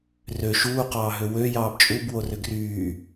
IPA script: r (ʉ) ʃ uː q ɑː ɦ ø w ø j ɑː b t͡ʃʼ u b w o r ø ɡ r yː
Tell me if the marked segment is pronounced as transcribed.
no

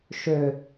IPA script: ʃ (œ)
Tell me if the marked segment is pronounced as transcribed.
no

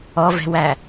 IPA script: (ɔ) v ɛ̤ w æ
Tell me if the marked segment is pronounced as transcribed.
yes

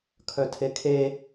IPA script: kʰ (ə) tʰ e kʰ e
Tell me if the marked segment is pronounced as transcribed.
no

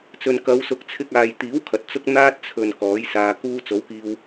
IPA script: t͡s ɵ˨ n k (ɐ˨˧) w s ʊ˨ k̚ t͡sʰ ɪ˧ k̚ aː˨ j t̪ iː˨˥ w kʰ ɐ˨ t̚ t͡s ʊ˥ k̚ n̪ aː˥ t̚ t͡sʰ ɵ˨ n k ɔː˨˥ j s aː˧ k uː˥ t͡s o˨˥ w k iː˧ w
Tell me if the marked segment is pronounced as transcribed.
yes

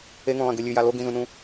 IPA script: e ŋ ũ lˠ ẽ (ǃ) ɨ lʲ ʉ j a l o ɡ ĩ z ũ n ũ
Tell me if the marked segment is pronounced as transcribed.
no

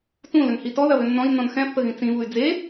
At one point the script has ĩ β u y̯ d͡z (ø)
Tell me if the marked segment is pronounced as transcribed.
no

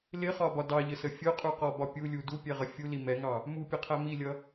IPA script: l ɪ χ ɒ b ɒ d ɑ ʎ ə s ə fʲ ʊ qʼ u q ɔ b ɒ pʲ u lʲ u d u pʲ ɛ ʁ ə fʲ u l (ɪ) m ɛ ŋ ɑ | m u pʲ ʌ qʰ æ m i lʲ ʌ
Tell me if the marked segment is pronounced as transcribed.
no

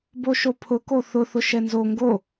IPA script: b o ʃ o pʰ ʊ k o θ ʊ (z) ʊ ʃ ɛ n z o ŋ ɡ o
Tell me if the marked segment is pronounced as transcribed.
no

